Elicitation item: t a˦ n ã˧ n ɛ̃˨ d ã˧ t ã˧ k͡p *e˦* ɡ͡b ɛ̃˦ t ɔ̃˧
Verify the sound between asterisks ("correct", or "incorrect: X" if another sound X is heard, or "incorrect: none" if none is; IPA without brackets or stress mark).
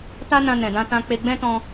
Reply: incorrect: e˧